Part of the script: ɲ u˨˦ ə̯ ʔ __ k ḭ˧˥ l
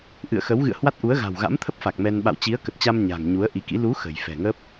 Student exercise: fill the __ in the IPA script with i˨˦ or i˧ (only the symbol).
i˨˦